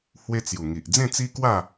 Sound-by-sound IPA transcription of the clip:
h w e˦ t͡s j u˨˩ ŋ i˨ ʔ d͡z ẽ˥˧ t͡s i˦ k w a˥˧

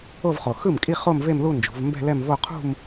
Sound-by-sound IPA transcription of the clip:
o˥˧ v χ o˨˩ x ɯ˥˩ m kʼ i˥˧ χ o˥˧ m v e˥˧ m l u˥˧ n d͡ʒ ṳ˩˧ v m b ɛ̤˥˧ l ɛ˥˧ m v o˥˧ qʰ ṳ˥˧ m

